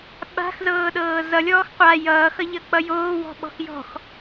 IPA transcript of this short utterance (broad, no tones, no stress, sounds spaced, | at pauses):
ɓ a̤ x z ɤː ɗ ɤː z ʌ lʲ ɔː x qʷ a j ʌː x ʌ ʎ ʌ k͡p ʌ j oː w ɔ̤ ɓ ɔ̤ x j ɔ̤ x